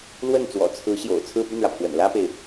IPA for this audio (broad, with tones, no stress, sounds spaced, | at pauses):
l w ə˥˩ n t͡s w ɔ̰˨˩ t͡sʰ ɹ̩˧˥ ɕ j o̰˨˩ ʊ̯ t͡sʰ ɹ̩˥˧ p y˥˩ n ɻ ä˩ pʰ w ə̰˨˩ n l ä˥ p e˨ ɪ̯